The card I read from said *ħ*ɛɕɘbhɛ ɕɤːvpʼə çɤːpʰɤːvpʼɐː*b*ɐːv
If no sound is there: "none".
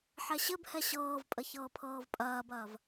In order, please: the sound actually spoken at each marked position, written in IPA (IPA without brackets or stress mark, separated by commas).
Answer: ħ, b